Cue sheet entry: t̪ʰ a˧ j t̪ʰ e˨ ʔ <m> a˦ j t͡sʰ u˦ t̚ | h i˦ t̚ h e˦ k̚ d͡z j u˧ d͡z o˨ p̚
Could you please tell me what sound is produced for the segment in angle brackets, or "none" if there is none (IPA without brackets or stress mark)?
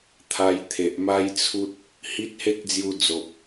m